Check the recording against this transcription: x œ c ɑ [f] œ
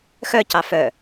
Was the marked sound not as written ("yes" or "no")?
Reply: no